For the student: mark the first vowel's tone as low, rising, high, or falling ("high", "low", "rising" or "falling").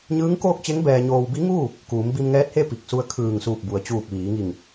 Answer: rising